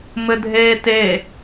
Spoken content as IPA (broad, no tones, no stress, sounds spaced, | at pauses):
m ɘ dʱ eː t e